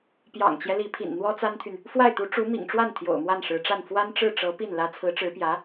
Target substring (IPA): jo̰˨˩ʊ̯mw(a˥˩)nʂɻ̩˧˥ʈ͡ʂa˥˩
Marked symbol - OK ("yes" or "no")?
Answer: yes